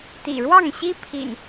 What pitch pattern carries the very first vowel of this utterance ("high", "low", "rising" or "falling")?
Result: low